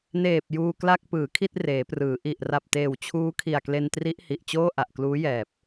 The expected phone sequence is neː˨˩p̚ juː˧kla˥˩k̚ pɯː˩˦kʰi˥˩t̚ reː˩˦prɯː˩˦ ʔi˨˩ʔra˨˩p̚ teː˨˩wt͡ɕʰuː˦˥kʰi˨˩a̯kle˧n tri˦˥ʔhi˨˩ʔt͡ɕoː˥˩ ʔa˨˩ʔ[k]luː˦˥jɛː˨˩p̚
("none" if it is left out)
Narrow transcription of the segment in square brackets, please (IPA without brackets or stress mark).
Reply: k